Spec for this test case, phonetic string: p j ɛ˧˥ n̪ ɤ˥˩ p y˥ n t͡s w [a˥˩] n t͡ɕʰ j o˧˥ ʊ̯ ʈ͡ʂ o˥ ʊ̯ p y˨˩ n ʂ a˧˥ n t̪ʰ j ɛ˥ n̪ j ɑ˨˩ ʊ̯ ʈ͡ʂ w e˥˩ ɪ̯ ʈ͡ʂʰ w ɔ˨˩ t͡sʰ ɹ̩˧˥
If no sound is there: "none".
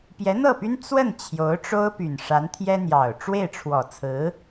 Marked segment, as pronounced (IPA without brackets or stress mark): ə˥˩